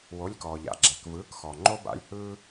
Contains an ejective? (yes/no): no